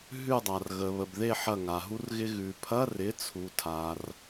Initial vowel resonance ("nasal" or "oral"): oral